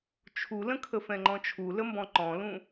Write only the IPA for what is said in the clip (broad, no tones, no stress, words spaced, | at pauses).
t͡ʃʰulə̃ kʰəfɛ̃ŋ͡ǃɔ̃t͡ʃʰu ləmbɔ̃ǃɔ̃lũ